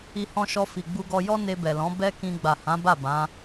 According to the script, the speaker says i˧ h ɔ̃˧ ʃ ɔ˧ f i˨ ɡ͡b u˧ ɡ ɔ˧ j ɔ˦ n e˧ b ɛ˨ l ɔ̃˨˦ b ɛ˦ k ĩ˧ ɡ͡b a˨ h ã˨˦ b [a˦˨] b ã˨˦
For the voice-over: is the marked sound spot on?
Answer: yes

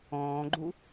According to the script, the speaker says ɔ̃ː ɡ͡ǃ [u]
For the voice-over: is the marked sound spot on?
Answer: yes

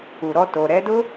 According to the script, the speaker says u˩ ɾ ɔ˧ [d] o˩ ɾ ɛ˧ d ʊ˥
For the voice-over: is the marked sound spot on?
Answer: no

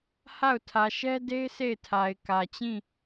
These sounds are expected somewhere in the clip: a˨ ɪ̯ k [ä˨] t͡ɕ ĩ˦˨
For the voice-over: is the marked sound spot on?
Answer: yes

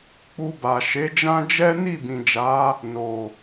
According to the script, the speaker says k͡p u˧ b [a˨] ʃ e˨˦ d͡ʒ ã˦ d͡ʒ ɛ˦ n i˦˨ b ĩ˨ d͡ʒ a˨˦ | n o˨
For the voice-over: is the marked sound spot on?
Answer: yes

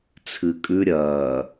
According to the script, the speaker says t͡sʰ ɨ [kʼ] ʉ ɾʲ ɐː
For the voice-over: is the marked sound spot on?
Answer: yes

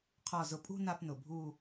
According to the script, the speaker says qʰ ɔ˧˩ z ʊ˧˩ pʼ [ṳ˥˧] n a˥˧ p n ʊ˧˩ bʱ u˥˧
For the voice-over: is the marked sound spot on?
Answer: yes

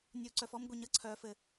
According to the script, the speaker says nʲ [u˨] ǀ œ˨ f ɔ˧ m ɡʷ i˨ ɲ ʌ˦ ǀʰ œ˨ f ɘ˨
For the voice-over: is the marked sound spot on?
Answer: yes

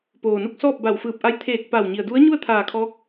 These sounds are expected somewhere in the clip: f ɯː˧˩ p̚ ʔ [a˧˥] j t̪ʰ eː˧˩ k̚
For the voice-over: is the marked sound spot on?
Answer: yes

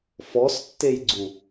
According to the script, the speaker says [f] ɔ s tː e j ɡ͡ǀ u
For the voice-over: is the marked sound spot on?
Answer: yes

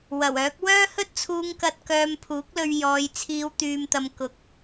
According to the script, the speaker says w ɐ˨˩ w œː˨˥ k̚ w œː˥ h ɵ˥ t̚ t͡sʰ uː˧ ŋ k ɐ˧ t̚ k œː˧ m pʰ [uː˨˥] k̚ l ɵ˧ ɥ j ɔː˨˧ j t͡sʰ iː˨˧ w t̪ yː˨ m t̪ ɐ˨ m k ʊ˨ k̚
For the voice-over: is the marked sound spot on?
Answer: yes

